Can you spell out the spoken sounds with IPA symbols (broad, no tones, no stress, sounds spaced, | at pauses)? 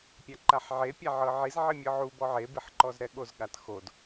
pʲ a ǃ a ħ ʕ e pʲ a ʕ ɤ ʕ i z ʕ i mʲ ɤ ʕ u b ɔ ʕ e b i ħ ǃ ɔ z ɾ ɛ ɠ o z ɠ a t x o d